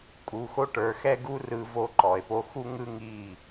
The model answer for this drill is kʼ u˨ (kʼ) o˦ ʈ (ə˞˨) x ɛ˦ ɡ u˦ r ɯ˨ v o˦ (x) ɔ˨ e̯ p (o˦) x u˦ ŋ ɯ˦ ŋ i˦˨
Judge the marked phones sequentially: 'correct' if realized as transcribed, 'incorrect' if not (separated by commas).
incorrect, correct, incorrect, correct